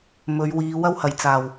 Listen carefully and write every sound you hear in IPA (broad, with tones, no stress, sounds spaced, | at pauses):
m ɵ˨˧ ɥ w iː˨˧ w ɐ˧ w h ɐ˨˩ j t͡s aː˨˩ w